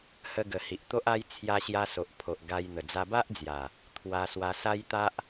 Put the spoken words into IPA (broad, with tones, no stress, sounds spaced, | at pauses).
h ə˧ ɡ ə˨˩ h i˨ ʔ t̪ o˦ ʔ a˦ j t͡sʰ j a˧ ɕ j a˧ s o˨ ʔ pʰ o˨ ʔ ɡ a˧ j n̪ ə˨˩ d͡z a˧ b a˦ ʔ d͡z j a˨˩ | t̪ʰ w a˧ s w a˧ s a˦ j t̪ a˦ ʔ